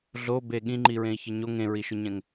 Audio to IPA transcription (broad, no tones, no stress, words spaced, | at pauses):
ɮo beɠĩŋ͡ǃi ɹẽi̯çɘɲo ŋẽɹiʃʊɲɛ̃ŋ